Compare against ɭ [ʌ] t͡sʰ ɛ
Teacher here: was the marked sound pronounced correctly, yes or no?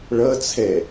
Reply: yes